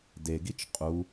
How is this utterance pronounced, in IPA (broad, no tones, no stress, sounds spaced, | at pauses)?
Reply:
d e ɡ i t͡ʃ qʼ u